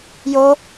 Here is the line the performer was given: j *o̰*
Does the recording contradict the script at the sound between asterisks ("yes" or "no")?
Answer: yes